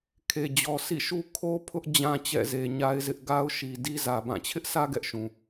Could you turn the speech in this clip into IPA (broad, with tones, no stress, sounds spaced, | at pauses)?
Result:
kʰ e˨ d͡ʑ ɔ˨ s ḭ˦˨ ʃ u˦ kʰ o˦ pʰ ʊ˦ ʔ d͡ʑ ã˦ t͡ɕ ɛ̰˦˨ z e˨ ɲ a˦ ɪ̯ z ɪ˦ ʔ ɡ a˦ ʊ̯ ʃ i˨ d i˦ z ä˨ b ã˦˨ t͡ɕʰ ɪ˦ ʔ s ä˦ ɡ ɛ˦ ʔ ʃ ũ˨